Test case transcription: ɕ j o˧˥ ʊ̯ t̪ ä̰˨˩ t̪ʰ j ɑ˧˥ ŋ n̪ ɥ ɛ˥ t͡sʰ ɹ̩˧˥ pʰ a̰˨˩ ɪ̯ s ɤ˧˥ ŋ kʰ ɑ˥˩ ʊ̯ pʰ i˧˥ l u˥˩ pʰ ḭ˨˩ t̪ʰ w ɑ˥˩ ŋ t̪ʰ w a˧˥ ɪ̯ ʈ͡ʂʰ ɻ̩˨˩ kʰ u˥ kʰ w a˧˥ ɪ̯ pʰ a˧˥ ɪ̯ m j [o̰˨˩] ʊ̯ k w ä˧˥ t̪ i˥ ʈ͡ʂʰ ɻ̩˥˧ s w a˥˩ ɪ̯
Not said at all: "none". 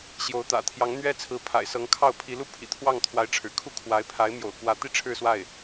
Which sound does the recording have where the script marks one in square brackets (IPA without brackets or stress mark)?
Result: o̰˨˩